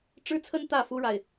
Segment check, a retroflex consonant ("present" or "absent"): present